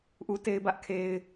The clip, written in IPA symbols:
ʔ u˦ t e˦ ɪ̯ b ä˦ ʔ kʰ e˦ ɪ̯

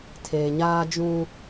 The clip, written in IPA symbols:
tʰ e˨ ɲ aː˦ d͡ʒ ũ˦

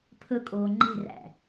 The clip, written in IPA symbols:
pʰ ɵ kʼ oː ŋ͡ǃ e̤ r æ̰

